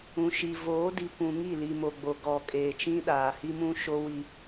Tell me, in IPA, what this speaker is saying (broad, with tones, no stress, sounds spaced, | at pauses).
ũ˨ ʃ i˨ v oː˨˦ d i˨ kʷ ũ˨ ŋ i˦˨ l i˨ m o˨ ɡ͡b o˨ ɡ ɔ˨ kʼ eː˨ t͡ʃ ĩ˦ ɗ aː˨ h i˦ m ũ˦ ʃ o˦ w i˦